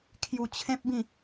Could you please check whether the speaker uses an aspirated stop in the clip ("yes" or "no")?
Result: yes